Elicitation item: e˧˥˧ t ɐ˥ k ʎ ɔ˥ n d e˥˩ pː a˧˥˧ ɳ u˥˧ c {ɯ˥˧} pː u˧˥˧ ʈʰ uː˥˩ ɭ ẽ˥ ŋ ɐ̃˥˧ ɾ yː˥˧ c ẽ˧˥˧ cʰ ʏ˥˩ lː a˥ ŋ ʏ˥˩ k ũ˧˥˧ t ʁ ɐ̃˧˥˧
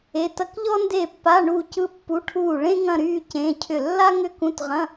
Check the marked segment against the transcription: correct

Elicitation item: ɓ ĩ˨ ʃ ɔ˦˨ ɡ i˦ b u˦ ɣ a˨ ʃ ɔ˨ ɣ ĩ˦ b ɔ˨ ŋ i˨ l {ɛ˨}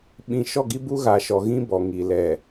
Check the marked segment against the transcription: correct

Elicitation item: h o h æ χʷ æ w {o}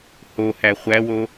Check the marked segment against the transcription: correct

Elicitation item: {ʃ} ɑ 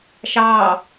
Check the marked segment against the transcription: correct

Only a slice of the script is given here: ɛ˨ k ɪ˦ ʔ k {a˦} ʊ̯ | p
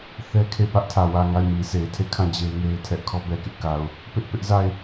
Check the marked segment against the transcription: incorrect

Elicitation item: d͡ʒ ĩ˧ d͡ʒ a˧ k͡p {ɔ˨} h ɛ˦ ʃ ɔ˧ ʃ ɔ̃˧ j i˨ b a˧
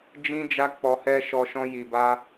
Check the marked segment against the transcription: incorrect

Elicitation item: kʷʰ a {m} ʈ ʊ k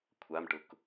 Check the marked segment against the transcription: correct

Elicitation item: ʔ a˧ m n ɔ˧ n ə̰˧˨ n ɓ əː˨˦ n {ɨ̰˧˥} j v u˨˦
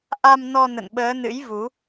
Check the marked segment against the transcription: correct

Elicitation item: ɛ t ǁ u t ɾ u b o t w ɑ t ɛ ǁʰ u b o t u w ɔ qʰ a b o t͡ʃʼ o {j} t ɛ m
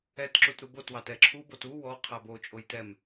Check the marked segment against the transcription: correct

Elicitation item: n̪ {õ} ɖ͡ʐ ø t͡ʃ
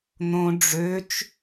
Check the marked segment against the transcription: correct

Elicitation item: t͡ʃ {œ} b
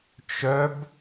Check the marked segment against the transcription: correct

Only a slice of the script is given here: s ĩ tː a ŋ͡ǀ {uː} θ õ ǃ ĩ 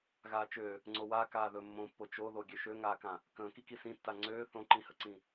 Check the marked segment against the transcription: incorrect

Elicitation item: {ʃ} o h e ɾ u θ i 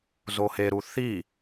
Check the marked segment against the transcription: incorrect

